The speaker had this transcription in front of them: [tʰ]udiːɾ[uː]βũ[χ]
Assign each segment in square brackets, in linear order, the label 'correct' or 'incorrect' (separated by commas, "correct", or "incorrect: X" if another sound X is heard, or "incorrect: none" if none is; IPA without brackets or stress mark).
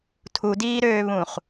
correct, incorrect: øː, correct